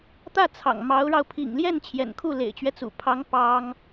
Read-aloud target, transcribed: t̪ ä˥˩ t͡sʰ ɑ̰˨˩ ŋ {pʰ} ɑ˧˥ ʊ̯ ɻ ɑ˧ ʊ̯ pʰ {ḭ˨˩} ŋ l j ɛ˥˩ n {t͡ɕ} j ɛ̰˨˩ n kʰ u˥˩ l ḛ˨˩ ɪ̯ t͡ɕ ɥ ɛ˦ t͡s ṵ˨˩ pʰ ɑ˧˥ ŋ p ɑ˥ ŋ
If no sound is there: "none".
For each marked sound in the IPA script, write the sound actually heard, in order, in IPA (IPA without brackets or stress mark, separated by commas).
m, ḭ˨˩, t͡ɕʰ